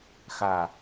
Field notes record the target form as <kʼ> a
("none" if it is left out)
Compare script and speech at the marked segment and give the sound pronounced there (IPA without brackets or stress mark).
x